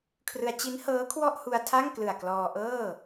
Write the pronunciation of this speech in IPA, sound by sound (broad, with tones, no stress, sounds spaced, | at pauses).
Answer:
kʰ r ɯ˧ a̯ t͡ɕ i˦˥ n h ɤː˦˥ kʰ w ɔ˥˩ ʔ h u˧ a̯ tʰ a˥˩ ŋ k l ɯ˨˩ a̯ k l ɔː˧ ʔ ɤː˥˩